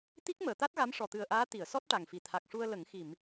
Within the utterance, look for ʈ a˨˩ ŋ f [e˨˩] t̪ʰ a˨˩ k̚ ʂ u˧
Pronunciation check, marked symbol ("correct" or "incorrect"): incorrect